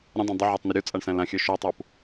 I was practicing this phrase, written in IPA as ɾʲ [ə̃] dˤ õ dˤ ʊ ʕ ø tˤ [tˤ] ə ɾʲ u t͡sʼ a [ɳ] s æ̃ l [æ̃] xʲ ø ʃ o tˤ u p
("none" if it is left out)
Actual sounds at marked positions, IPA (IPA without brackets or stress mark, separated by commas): ə̃, n, ɳ, ã